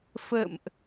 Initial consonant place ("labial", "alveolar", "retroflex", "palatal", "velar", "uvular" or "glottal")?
labial